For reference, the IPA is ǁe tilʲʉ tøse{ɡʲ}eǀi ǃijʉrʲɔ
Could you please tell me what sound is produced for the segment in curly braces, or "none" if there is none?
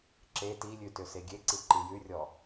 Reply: ɡʲ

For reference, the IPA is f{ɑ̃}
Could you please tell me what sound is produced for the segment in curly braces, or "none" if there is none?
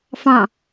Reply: ɑ̃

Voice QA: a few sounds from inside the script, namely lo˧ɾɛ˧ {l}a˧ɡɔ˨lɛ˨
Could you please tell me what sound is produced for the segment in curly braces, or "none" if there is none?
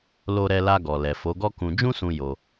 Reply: l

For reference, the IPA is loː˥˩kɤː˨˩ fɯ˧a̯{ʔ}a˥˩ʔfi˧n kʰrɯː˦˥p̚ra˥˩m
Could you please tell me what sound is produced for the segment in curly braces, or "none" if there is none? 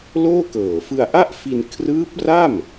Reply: ʔ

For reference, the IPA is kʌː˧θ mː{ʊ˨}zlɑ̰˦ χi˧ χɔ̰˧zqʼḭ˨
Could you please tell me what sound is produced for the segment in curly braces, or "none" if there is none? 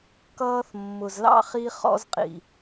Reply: ʊ˨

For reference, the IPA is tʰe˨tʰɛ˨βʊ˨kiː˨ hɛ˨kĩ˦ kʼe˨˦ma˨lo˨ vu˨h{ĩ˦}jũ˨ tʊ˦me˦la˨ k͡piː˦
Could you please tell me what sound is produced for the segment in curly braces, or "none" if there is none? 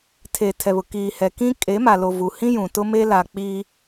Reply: ĩ˦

